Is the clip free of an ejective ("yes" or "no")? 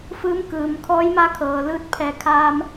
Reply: yes